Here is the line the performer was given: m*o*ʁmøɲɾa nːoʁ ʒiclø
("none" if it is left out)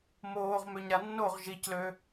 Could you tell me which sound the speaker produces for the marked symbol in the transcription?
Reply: oː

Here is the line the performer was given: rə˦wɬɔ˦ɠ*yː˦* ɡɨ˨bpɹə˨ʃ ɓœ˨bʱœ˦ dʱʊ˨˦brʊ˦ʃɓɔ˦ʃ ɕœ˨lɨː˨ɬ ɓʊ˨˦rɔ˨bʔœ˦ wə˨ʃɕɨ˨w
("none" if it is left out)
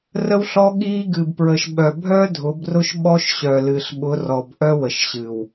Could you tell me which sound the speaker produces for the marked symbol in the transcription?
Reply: iː˦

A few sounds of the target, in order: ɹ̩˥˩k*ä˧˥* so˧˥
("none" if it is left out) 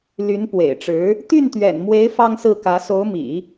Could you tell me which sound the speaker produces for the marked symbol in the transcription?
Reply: ä˧˥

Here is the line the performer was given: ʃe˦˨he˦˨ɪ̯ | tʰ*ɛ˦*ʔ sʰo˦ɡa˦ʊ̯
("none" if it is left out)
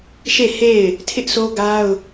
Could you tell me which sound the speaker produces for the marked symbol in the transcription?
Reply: ɪ˦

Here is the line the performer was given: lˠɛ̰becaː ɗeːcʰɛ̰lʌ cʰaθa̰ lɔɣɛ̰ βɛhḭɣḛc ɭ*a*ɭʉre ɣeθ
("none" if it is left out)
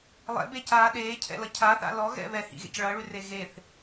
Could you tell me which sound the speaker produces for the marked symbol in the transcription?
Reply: ʌ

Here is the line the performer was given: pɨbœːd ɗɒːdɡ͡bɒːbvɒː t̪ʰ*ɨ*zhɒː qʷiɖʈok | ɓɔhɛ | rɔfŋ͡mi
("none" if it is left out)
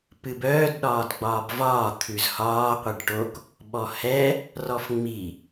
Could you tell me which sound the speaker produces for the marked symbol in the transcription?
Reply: ʉ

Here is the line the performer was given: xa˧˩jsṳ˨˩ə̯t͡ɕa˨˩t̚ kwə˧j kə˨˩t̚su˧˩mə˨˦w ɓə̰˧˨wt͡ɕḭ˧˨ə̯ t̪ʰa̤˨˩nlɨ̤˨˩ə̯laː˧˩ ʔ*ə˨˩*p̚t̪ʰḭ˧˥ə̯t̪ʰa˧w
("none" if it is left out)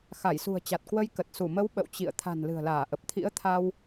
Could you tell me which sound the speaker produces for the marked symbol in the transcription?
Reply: ə˨˩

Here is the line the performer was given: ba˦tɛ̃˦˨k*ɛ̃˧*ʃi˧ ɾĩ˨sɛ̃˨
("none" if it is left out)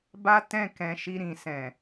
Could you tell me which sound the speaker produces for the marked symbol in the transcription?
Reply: ɛ̃˨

